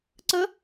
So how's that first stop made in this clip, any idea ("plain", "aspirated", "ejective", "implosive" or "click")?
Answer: click